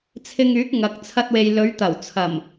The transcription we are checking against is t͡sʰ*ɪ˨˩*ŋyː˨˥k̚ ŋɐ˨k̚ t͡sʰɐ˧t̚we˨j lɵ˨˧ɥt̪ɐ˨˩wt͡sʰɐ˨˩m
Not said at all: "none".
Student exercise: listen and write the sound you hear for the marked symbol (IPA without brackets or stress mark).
ɪ˧